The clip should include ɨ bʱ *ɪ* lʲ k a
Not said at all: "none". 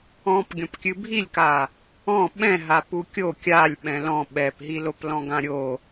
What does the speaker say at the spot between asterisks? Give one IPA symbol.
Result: i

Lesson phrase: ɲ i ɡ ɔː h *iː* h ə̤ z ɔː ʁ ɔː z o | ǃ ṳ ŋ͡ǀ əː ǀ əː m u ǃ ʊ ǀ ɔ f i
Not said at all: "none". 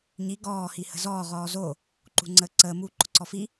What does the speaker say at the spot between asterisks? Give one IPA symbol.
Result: i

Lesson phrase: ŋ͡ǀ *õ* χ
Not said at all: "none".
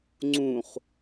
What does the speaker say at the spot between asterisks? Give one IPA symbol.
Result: ũ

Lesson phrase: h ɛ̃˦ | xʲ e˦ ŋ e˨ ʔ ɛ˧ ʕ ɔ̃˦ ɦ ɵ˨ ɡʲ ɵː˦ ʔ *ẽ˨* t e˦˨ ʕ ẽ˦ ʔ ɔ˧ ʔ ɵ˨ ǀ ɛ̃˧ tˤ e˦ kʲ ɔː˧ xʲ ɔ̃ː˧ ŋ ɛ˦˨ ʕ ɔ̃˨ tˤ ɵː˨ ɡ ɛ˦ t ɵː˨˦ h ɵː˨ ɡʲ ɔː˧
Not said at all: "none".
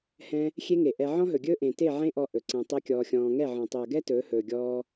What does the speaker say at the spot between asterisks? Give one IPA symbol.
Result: ẽ˨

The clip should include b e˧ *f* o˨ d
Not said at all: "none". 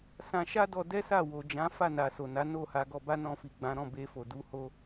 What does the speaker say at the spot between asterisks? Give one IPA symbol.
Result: f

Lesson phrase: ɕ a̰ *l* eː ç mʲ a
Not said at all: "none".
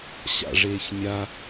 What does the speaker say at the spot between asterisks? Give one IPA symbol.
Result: ʐ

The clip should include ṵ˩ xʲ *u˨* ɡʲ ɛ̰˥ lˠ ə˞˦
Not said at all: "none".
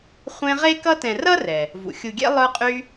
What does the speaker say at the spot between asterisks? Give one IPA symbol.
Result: u˨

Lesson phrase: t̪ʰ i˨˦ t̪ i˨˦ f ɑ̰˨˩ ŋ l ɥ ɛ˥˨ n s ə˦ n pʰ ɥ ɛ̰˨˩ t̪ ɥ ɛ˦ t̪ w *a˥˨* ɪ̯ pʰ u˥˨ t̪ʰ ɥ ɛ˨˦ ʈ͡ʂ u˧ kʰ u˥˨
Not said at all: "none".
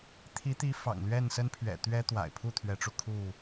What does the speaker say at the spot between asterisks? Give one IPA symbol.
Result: a̰˨˩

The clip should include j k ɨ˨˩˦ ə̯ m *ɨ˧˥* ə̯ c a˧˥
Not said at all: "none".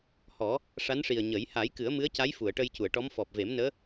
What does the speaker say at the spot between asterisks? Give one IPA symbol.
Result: ɨ˧˥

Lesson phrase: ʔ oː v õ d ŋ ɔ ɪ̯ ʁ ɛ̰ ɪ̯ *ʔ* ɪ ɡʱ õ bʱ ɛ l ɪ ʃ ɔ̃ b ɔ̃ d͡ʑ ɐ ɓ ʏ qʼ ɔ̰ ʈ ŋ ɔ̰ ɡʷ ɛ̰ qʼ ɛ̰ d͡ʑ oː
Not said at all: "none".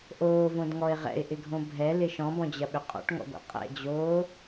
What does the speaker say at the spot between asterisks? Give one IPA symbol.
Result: ʔ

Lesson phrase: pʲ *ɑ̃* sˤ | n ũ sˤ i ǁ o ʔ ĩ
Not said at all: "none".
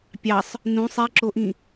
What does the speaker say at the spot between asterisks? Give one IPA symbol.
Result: ɑ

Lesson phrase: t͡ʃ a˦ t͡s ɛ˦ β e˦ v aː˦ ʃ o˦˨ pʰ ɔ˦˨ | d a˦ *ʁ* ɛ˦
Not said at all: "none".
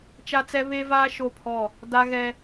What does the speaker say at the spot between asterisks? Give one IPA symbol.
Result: ɣ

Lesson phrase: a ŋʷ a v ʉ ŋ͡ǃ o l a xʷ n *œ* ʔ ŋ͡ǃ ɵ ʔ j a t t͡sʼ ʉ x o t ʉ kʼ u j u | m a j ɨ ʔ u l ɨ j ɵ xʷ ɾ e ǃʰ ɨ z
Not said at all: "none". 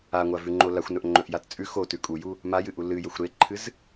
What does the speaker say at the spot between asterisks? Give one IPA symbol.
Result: ɵ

